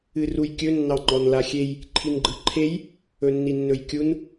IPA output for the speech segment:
ɨrujkʲɵ nːɑŋ͡ǃɔnlaxʲej | ǃʰinɡ͡ǃɯǃʰej | ɵnːinːɵjkʲun

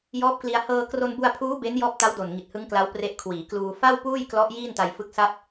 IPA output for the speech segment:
jɔː˦˥p̚kli˧a̯ hɤː˧ kro˧nbu˧a̯pʰuː˦˥ be˦˥n jɔː˦˥p̚ta˦˥wdo˨˩n ŋi˨˩t̚hɯ˦˥ŋkla˦˥w pre˦˥ʔkʰwiː˩˦kluː˧ fa˥˩wpuː˥˩jklɔ˦˥ʔ jiː˥˩nta˧jfɯ˦˥k̚ sa˥˩p̚

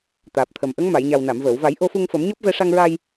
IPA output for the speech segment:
t̪aː˨˩p̚t̪ʰə˨˩m ʔə˧˥ŋma˨˩˨jɲa˨˩w na˨˩˨mvəː˨˩˨wva˨˩˦j ʔo˧fu˧ŋfə˨˩˦m ɲɔ˦˥p̚vɛ˧ʂa˧ŋɹa˧j

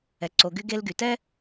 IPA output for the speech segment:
ɛ˩ǀo˩ɡy˧ ɡe˧lɡy˩tɛ˥

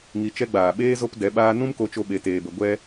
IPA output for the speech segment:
ŋi˧t͡ʃɛ˦ ɡ͡baː˨ɓeː˦ zo˦pdɛ˨˦ɓaː˦ nũ˦mko˧t͡ʃo˧ ɓe˧teː˧bə˧ ɡʷɛ˦

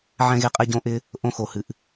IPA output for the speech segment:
ʕɛ̃˦ɣe˦qʼɛ˦ ɟõ˦ʔɪ˦ | ʔõ˦xo˧hɨ˧ʔ

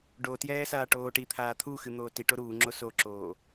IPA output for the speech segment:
ɖotjɛː saːʈoːʈit̪ʰaː t̪ʰuxɨ n̪oːtiʈo ɾuːŋ͡ǁo soǁoː

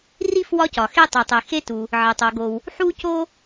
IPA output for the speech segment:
ri˥f wɒ˥cɒ˩xe˥ tˤo˩tˤe˩ xe˥tu˩ | ʕe˩tˤo˩ɡo˩w | ħu˥co˥

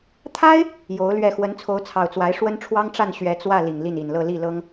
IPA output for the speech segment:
t̪ʰa˥ɪ̯ | jo˧˥ʊ̯lɥɛ˥˩ xwə˧˥nt͡sʰo˧˥ʊ̯t͡sʰɑ˨˩ʊ̯t͡swa˧˥ɪ̯ ʂwə˥nʈ͡ʂʰwɑ˥ŋʈ͡ʂa˥˩n ɕɥɛ˧˥t͡swä˥˩ li˨˩ŋli˥˩ni˨˩nlɤ˥˧ li˥˩lɤ˥ŋ

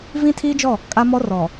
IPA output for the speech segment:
vĩ˦tʰiː˦d͡ʒɔ˦˨ | kʼa˦ mɔ˦rɔ˨

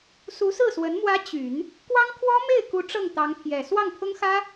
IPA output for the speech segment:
su˧˥sɹ̩˥˩swə˧˥n mwä˧˥ t͡ɕy˨˩˦n | kwɑ˥ŋkʰwɔ˥ me˥˩ɪ̯ku˧˥ ʈ͡ʂɤ˥˩ŋt̪ɑ˧˥ŋpʰjɛ˨˩ swɑ˥˩ŋpʰʊ˥ŋxä˥

